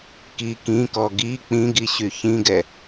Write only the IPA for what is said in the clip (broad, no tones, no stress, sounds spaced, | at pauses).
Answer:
k i k ĩ k ɔ ɡ i k͡p ĩ ɡ i ɕ y ç ĩ ɡ ɛ